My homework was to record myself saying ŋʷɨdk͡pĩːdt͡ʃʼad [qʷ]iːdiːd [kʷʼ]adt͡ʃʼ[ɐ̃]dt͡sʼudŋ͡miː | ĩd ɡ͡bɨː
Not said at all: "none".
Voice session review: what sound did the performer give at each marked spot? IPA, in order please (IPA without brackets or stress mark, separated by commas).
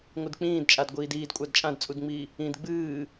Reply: ɡʷ, kʷʼ, ã